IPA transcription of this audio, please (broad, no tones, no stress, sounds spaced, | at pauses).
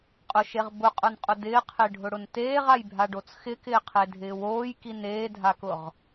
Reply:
qʼ ʊ ʃ e ʁ b ʊ qʼ ʊ n qʼ ʊ d ɪː qʰ ɪː ɖʱ ʊ ɽ ʊ n t eː ʁ a j bʱ a ɖ o t͡s x ɪ k ɪː qʰ e dʱ ɪː w oː j k i n eː dʱ a k ʊ ʁ